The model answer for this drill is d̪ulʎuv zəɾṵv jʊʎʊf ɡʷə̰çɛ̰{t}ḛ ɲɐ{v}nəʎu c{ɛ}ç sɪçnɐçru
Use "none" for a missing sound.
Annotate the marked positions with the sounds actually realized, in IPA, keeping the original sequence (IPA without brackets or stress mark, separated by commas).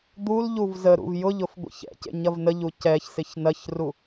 c, v, ɛ